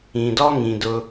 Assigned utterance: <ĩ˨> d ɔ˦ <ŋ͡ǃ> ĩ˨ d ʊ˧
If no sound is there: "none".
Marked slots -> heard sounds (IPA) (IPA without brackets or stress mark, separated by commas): ĩ˨, ŋ